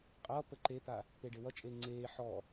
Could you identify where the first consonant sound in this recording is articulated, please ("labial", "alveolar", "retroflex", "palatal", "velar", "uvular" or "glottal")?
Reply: uvular